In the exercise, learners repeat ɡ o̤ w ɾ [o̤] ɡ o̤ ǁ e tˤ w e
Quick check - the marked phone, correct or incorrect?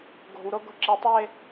incorrect